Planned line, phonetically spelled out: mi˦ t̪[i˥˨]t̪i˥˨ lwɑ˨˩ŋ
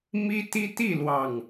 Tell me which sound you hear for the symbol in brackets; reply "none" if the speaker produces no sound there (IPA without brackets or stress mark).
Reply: i˦